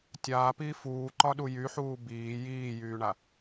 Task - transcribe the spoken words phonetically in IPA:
tʲ aː p iː f uː ǃ ɒ ɗ u j y ħ uː b iː j iː j yː ɳ a

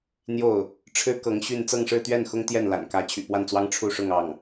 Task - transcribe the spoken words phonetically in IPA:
n̪ j o˥˩ ʊ̯ | ʈ͡ʂʰ ɻ̩˥ k ɤ˧˥ ŋ ɕ y˥˧ n t͡s ɤ˥˧ ŋ ʂ ɻ̩˥˧ t̪ ɥ ɛ˥˩ n x ʊ˥ ŋ t̪ j ɛ˥˩ n l a̰˨˩ n k ä˧˥ t͡ɕʰ y̰˨˩ p w a˥˩ n t͡s w ɑ˥ ŋ ʈ͡ʂʰ u˥˧ ʂ ʊ˥˧ ŋ ɑ˥˩ ŋ

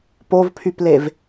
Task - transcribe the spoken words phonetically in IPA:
p o v pʰ y p l e v

